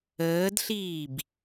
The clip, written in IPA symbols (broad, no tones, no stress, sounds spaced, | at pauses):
əː d ɬ iː b